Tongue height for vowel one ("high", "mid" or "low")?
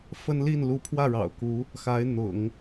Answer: mid